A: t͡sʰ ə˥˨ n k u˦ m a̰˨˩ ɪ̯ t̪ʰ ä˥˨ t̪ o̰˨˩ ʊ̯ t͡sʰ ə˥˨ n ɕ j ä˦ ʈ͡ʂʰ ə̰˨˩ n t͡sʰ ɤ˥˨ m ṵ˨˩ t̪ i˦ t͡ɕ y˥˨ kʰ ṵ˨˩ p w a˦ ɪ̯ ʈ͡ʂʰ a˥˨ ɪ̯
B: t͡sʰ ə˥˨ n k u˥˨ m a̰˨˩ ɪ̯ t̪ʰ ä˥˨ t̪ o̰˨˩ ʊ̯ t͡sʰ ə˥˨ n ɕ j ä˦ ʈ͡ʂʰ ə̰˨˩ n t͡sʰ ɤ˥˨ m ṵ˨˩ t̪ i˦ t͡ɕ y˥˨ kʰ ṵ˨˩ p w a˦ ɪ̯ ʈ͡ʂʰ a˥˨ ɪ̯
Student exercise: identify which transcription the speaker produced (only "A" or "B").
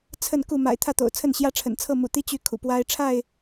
B